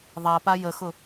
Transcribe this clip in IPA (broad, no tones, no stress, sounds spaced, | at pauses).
ðˤ a p a j ə x ʊ